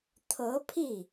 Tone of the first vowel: rising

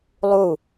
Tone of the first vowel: falling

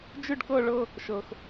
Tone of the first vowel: falling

